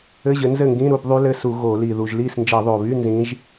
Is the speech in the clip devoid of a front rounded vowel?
no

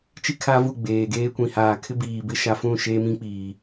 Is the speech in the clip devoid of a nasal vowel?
no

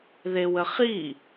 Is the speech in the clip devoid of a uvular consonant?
no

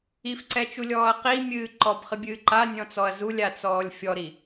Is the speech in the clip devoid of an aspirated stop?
yes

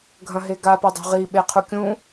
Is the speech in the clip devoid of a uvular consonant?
no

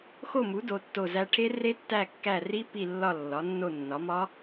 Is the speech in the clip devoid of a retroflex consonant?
no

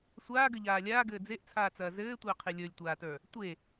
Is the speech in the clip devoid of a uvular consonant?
no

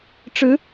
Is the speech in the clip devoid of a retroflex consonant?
no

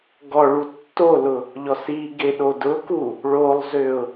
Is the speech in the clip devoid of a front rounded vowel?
no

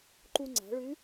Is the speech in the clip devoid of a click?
no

